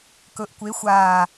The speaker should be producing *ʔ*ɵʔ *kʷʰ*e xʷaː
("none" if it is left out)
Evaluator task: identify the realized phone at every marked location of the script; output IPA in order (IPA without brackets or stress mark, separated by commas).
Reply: k, kʷ